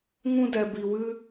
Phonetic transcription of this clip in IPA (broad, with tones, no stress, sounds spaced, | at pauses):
ŋ ũ˧ d ɛ˨ b i˨ w ɨ˧